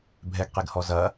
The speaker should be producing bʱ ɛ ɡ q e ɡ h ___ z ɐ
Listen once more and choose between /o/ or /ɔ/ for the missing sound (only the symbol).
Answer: ɔ